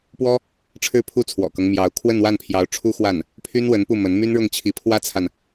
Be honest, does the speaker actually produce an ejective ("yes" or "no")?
no